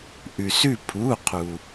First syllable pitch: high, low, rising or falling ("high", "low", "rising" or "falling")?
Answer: low